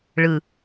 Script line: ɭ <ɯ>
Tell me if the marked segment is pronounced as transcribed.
yes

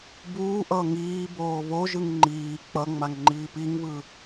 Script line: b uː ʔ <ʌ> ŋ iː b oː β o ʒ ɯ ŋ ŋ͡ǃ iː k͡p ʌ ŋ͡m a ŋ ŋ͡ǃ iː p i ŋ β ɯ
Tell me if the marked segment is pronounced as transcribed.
yes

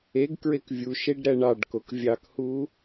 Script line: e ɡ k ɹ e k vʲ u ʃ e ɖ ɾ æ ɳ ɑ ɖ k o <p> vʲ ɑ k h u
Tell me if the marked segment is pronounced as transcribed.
no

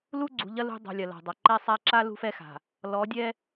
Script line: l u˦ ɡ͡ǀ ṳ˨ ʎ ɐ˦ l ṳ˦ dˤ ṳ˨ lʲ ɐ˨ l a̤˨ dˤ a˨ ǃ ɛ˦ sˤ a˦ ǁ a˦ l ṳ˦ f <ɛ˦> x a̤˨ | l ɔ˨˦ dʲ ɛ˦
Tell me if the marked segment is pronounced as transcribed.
yes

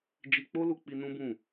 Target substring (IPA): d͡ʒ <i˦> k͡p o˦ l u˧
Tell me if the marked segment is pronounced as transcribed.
no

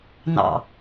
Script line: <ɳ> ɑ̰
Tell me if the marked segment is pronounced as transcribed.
no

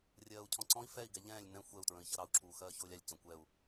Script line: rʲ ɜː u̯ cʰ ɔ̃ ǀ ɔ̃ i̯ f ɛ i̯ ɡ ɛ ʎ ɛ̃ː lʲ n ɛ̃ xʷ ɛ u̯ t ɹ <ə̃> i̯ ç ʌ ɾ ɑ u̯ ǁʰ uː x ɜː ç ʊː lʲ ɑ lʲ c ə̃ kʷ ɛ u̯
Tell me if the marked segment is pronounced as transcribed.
yes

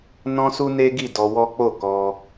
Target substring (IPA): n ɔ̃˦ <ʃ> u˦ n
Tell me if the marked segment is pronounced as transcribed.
no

